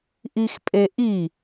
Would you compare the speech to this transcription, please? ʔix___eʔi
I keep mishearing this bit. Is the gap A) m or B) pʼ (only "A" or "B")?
B